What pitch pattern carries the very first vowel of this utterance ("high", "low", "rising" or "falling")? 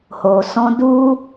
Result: low